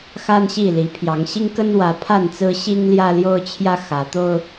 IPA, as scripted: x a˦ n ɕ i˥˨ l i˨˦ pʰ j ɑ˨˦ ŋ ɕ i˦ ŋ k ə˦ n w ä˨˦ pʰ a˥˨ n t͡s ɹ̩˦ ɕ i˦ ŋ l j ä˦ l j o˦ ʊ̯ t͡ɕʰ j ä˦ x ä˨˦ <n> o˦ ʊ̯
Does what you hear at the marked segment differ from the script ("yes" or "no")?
yes